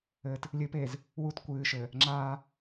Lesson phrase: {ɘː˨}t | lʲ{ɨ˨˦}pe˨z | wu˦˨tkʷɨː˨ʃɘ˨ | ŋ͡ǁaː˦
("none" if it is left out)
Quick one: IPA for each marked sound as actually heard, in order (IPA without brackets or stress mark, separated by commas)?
ɘ˨, ɨ˨˦